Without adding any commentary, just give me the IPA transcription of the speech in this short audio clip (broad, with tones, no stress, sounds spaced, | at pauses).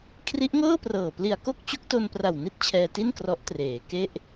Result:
kʰ r i˦˥ ʔ ŋ ɤː˥˩ p r ɤː˨˩ p l i˨˩ a̯ k o˥˩ k̚ t͡ɕ u˦˥ k̚ t o˧ n p r a˨˩ w n i˥˩ t̚ t͡ɕʰ ɛː˧ t i˥˩ n k r ɔ˦˥ ʔ t r eː˩˦ k e˥˩ ʔ